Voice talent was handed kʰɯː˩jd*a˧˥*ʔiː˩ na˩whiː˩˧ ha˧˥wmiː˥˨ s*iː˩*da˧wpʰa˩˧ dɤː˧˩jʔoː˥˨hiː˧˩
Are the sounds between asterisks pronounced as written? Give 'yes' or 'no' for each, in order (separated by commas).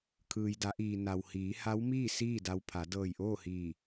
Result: no, no